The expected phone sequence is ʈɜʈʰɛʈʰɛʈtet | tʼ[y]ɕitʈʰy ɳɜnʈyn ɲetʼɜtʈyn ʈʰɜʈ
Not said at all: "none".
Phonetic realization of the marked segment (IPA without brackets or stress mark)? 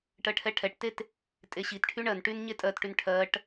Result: e